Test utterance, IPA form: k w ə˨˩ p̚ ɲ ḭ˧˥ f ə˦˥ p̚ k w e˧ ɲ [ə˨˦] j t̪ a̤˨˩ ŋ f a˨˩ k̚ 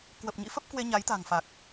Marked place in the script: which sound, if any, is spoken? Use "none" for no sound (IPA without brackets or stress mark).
a˨˦